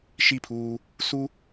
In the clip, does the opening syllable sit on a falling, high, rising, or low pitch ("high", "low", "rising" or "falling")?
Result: falling